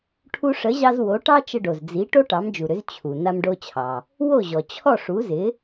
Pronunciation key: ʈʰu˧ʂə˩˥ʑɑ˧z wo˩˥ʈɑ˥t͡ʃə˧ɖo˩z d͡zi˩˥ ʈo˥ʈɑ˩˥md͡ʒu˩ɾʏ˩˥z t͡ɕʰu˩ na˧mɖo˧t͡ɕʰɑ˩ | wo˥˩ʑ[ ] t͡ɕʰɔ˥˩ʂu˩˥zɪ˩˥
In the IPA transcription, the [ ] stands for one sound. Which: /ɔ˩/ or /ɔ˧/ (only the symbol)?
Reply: ɔ˩